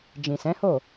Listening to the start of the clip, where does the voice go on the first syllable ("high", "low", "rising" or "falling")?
low